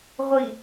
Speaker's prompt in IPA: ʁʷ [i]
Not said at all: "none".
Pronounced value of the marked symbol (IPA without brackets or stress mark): i